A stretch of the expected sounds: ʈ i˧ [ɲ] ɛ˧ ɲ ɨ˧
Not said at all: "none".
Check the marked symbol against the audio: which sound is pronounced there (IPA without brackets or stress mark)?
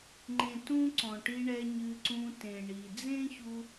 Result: ɳ